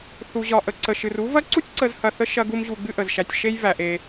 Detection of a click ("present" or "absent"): present